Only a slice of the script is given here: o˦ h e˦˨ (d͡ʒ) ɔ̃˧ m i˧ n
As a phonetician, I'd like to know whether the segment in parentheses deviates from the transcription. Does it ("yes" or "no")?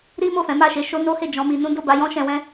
no